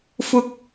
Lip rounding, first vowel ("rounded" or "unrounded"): rounded